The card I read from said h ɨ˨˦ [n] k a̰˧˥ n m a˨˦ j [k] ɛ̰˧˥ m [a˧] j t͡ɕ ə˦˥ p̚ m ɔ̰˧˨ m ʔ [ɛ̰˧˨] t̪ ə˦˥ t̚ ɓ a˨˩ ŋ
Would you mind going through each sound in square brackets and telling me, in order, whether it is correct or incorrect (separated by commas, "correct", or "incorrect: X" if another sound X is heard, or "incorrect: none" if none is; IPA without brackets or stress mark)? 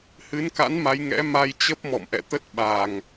correct, incorrect: ŋ, correct, correct